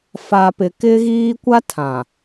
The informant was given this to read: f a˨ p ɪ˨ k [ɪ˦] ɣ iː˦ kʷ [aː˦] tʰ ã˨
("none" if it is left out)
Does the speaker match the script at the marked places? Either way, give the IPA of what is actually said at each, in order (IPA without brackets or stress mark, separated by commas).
ɪ˦, a˦